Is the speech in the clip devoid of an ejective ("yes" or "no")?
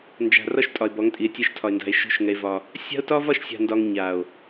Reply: no